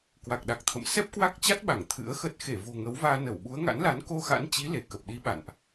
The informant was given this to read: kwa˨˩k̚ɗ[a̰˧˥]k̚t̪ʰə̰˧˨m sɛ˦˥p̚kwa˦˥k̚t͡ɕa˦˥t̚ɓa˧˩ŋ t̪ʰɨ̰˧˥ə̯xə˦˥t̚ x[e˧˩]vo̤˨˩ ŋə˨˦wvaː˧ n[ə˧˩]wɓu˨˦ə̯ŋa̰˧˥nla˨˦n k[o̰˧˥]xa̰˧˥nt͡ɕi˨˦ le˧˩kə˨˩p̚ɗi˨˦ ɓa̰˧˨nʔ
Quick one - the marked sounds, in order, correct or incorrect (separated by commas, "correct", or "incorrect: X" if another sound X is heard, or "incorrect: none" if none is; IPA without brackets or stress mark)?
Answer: incorrect: a˨˩, correct, correct, incorrect: o˧